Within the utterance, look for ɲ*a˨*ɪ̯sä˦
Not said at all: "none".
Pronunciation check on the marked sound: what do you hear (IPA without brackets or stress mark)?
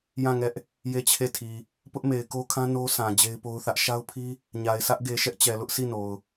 a˨